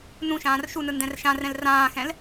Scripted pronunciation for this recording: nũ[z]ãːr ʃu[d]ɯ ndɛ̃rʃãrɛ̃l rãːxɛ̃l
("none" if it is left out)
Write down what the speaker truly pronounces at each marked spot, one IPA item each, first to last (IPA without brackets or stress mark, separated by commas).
ʃ, n